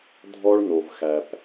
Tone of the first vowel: high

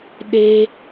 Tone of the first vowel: high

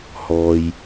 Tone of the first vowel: low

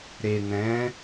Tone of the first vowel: low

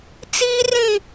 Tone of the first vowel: high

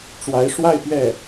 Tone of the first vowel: rising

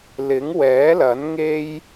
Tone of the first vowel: rising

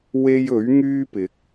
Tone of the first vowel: high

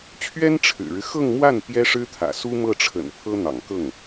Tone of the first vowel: high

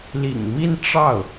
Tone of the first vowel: low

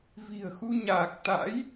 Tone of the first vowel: low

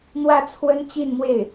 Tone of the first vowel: falling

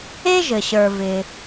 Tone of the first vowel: high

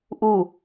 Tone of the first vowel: falling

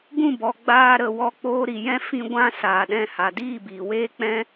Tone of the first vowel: falling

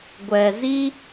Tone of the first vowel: low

